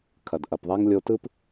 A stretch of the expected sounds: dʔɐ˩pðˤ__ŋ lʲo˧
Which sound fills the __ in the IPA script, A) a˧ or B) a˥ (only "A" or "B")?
B